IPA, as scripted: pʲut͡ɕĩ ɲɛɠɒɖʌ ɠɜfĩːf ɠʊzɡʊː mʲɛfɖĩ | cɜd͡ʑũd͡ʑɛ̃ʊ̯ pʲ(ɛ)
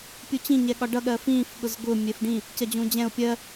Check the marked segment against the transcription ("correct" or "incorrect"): incorrect